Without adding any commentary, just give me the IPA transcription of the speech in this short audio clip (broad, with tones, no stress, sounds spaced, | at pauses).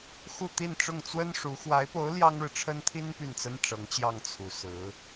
x u˥˧ t̪ i˥˧ n ʈ͡ʂ ʊ˥˩ ŋ t͡s w ə˥ n ʂ u˧˥ x w a˧˥ ɪ̯ p o˧˥ ʊ̯ l j ɑ˥ ŋ ɻ ɻ̩˨ ʈ͡ʂʰ ə˥ n t̪ʰ i˥ n p y˥˩ n t͡s ə˥ n ʈ͡ʂ ɤ˧˥ ŋ t͡ɕ j ɑ˥˩ ŋ t͡sʰ u˨˩ s ɹ̩˧˥